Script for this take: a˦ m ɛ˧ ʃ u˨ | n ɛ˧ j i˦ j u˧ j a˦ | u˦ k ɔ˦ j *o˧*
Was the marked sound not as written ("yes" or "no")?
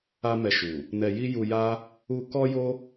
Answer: yes